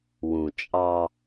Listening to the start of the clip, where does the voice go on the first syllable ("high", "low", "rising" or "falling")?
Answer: low